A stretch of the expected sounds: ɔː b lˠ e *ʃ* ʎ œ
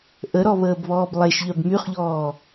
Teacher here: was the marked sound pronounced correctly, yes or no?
yes